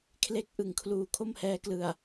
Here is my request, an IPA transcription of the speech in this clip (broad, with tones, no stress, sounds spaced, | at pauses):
kʰ l e˦˥ k̚ ʔ ɯ˨˩ ŋ kʰ l uː˩˦ kʰ o˥˩ m h ɛː˧ k l ɯ˨˩ a̯